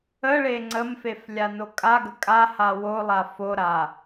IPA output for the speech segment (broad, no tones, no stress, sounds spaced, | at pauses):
ə ɭ e ŋ͡ǀ ə m f e f lʲ a n o kʼ a ɡ ə kʼ a h a w o lˠ a f o ɾ a